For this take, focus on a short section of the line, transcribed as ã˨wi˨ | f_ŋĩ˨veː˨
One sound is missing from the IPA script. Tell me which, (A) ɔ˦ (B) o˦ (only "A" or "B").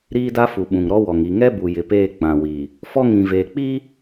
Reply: A